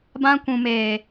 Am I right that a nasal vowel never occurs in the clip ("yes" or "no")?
no